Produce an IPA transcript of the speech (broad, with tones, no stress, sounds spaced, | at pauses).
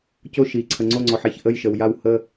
c o˧˩ ʃ i˩ ǀʰ ə˩ ŋ͡ǀ o˧˩ ŋ͡ǀ ɔ˩ ħ ɛ˩ ç ʔ ə˧˩ j ʃ ə˩ w j a˧˩ w h ə˧˩